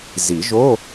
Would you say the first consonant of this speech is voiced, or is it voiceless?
voiced